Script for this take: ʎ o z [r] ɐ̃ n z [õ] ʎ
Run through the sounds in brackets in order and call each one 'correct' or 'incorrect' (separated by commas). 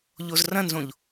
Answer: correct, correct